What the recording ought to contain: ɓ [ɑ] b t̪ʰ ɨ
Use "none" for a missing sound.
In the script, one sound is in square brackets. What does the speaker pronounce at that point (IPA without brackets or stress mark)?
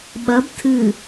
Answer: ɐ